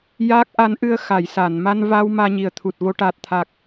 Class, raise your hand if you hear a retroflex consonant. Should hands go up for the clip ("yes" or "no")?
yes